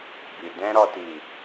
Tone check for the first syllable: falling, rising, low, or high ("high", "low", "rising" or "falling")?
low